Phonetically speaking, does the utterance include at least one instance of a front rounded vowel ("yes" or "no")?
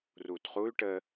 yes